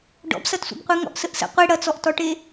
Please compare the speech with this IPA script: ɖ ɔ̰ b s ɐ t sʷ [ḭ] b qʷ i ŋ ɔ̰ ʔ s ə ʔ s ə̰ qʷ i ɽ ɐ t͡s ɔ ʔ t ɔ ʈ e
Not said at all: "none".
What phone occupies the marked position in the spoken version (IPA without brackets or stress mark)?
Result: ḭ